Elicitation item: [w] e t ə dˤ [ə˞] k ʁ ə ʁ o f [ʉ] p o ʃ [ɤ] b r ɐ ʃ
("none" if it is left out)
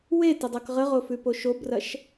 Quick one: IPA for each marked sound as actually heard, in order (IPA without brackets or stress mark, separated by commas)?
w, ɤ, ʉ, o